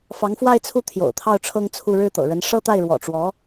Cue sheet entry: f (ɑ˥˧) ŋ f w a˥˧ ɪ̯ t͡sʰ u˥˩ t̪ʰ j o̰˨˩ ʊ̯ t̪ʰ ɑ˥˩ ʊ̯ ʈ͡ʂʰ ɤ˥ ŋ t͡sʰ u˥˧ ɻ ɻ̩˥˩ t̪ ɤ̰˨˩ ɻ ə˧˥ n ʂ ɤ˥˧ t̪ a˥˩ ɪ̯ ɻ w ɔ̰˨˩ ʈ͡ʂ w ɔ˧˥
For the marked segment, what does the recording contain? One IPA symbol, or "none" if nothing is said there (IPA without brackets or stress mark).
ɑ˧˥